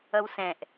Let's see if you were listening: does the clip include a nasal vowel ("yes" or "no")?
yes